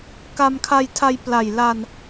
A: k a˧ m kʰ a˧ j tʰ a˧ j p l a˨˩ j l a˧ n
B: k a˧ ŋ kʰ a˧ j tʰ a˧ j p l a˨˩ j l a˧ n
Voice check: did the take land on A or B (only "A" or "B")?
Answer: A